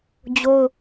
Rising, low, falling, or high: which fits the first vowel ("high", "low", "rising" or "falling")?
high